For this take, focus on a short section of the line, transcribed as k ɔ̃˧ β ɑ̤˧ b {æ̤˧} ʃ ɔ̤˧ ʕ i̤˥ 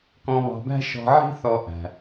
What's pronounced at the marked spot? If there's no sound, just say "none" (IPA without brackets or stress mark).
æ̤˥